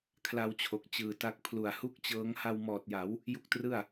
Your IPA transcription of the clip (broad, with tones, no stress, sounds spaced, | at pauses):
kʰ l a˧ w t͡ɕʰ o˨˩ k̚ t͡ɕ ɯː˨˩ t a˦˥ k̚ pʰ l u˨˩ a̯ h u˥˩ k̚ t͡ɕ ɤː˦˥ ŋ h a˧ w m ɔː˨˩ t̚ j a˩˦ w | j u˦˥ k̚ t r ɯ˥˩ a̯